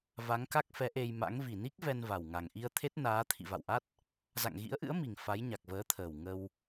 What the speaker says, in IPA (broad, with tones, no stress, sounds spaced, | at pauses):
v a˨˦ ŋ k a˦˥ k̚ f ɛ˨˦ ʔ e˧ j m a̰˧˥ ŋ v i˨˩ n i˦˥ k̚ v ɛ˧ n v a˨˩ w ŋ a˨˩ ŋ ʔ i˧ ə̯ t̪ʰ e˦˥ t̚ n aː˨˦ t̪ʰ ḭ˧˨ v a̰˧˨ w ʔ a˦˥ t̚ | z a̰˧˨ ŋ ɣ ḭ˧˥ ə̯ ʔ ɨ̰˧˥ ə̯ m i˨˩ ŋ f a˨˦ j ɲ a˨˩ k̚ v əː˨˦ t̪ʰ əː˨˩ w ŋ ə˧ w